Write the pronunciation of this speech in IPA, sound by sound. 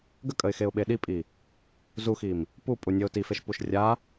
ɡ ə kʼ ə ɪ̯ x e ʊ̯ ɓ e ɗ i pʼ i | z u x i m | p u pʼ u nʲ ə ʊ̯ t i f e ʃ p u ʃ rʲ a

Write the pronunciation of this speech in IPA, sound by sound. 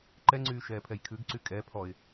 ǃ ɛ ŋ͡ǀ yː ʃ ɛː pʰ ɛ j kʰ ʉ ɡ ǀ y kʼ ɛ pʰ ɔ ɪ̯

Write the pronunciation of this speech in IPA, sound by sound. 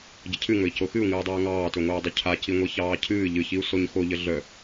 ɟ ə cʰ ɨ ŋ ɵ i̯ c o x ɨ u̯ ŋ ɨː dˤ œː ŋ ɑː t ɵ ŋʷ œː dˤ ɵ cʰ a c i ŋʷ i ç ɑː cʰ ɨː ʎ ɨ ç i u̯ s o ɲ x o ʎ ə ɮ œ

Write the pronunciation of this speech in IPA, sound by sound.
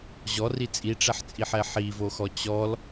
ʑ ɔ r i t͡sʼ i ʈ͡ʂ ɛ ħ t͡sʼ i ħ ɛ ħ i v o x ɔ t͡ɕ ɔ l

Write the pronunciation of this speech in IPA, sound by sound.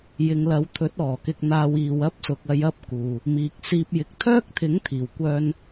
j ɪ˨ ŋ l ɐ˨˧ w t̪ʰ ɵ˨˥ t̚ ɔː˨˩ k ɪ˧ k̚ n̪ aː˧ w iː˨ w ɐ˥ p̚ s ʊ˨ k̚ ɐ˧ j ɐ˥ p̚ k uː˨ | m iː˨ k̚ s iː˧ p̚ j ɪ˨ k̚ t̪ʰ œː˥ k̚ t̪ʰ ɪ˨˥ ŋ t̪ʰ iː˨˩ w kʷ œː˥ n

